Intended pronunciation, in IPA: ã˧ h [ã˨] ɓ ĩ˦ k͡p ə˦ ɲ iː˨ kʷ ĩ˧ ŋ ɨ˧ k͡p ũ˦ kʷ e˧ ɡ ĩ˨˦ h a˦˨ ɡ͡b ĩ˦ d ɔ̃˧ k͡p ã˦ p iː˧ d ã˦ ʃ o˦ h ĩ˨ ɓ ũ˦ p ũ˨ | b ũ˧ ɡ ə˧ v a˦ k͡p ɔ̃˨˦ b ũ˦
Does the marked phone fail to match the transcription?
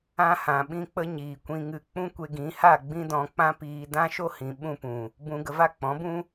no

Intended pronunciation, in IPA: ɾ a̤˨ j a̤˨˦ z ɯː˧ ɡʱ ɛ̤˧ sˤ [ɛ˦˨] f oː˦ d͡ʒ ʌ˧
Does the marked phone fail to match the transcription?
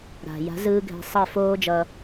no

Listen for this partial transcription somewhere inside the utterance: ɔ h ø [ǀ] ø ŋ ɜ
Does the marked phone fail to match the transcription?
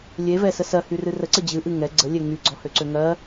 no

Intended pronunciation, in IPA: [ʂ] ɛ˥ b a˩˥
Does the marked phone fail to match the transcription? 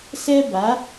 yes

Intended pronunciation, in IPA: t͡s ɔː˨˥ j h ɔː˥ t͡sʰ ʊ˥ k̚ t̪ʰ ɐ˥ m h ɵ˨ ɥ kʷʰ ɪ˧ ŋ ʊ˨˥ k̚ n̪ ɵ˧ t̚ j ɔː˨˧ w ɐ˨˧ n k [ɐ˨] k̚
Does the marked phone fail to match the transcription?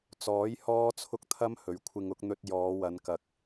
no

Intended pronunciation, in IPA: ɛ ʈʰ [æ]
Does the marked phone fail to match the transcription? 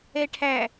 no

